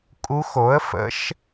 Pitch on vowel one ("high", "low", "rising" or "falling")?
rising